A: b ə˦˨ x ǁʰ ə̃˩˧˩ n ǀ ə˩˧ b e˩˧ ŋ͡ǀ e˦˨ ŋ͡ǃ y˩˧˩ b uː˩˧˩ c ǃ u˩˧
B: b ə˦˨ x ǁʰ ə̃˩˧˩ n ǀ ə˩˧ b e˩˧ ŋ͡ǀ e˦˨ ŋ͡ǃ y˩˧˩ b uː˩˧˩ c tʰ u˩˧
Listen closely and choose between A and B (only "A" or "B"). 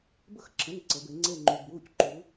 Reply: A